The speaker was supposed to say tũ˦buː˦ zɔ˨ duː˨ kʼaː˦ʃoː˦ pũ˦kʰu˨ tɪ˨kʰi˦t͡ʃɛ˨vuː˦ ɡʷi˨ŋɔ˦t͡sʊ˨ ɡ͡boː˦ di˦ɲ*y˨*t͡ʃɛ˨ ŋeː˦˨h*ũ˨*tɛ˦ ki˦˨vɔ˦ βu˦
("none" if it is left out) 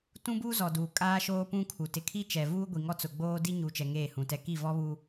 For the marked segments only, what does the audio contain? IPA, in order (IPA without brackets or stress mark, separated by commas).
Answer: u˨, ũ˨